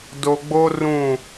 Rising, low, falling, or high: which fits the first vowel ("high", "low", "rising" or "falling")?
low